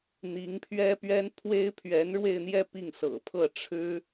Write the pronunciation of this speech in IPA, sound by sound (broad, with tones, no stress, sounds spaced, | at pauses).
n̪ i˧˥ ŋ pʰ ɥ ɛ˥ p ɥ ɛ˥ n pʰ w e˥ ɪ̯ pʰ ɥ ɛ˧˥ n ɻ w e˥˧ ɪ̯ n̪ j ɛ˥˧ p i˥˩ ŋ s ɤ̰˨˩ pʰ ɤ˥˩ ʈ͡ʂʰ ɻ̩˥